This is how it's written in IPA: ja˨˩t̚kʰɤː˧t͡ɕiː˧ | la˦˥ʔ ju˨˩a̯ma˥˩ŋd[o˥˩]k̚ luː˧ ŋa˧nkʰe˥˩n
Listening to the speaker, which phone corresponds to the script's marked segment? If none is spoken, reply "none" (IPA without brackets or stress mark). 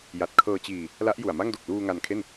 o˨˩